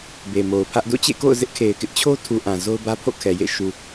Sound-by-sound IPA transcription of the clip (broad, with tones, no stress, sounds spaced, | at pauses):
b e˨ m o˨ ʊ̯ pʰ ä˦ ʔ d o̰˦˨ t͡ɕ ḛ˦˨ k o̰˦˨ ʊ̯ z ɪ˦ ʔ kʰ e˨ ɪ̯ k ɪ˦ ʔ t͡ɕʰ o˦ tʰ u˨ ʔ ã˨ z o˦ ʊ̯ b ä˦ pʰ o̰˦˨ kʰ ɛ˨ j ḛ˦˨ ʃ u˨